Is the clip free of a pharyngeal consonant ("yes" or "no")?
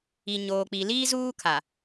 yes